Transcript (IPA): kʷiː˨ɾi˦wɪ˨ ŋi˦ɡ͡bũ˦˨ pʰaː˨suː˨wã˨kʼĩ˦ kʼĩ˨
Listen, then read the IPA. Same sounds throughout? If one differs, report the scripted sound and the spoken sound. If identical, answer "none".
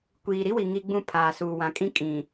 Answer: ɪ˨ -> i˨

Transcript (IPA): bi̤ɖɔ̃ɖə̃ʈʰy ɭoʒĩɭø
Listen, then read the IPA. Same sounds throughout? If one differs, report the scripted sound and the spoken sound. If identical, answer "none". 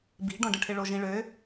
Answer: y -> ɪ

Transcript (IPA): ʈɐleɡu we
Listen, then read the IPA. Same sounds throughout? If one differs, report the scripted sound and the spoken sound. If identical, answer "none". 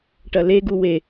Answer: none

